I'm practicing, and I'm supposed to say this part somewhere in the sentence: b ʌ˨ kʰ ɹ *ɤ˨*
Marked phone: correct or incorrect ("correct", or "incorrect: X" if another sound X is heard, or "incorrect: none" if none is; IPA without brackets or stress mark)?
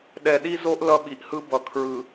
incorrect: ɯ˨